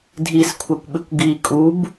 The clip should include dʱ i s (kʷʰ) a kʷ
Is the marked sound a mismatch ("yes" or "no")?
no